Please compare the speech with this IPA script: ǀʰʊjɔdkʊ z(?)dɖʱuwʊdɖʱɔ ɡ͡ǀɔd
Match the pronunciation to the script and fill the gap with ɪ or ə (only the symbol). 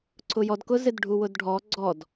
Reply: ɪ